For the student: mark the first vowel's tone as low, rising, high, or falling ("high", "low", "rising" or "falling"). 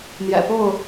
low